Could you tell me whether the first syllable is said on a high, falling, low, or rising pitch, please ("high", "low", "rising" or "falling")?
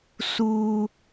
high